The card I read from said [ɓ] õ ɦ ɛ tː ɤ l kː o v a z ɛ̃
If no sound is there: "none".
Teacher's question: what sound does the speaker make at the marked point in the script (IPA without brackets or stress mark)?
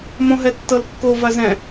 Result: m